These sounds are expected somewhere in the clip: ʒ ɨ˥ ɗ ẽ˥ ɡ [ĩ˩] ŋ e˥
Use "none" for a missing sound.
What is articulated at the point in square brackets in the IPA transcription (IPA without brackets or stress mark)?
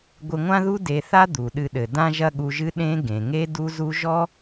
ẽ˩